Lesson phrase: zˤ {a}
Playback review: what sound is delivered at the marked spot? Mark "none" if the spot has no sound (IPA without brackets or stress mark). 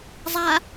a